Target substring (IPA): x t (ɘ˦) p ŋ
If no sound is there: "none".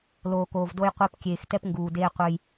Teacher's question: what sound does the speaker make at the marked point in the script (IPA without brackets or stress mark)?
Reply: ɛ˦